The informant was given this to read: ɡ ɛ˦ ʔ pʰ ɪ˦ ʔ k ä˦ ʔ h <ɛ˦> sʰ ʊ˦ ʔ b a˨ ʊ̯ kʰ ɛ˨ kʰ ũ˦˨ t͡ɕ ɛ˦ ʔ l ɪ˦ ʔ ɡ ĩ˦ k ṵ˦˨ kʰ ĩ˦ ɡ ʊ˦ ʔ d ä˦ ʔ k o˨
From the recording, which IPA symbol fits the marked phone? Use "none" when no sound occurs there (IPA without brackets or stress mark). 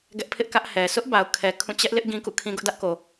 ɛ˨